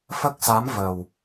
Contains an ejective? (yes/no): no